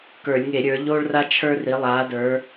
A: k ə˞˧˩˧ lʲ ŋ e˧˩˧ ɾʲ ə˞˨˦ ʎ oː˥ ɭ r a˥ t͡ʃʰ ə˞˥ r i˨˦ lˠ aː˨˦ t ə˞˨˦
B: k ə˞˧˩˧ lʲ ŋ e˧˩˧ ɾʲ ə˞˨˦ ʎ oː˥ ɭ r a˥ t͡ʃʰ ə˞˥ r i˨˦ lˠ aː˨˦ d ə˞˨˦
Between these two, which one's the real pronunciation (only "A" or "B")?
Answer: B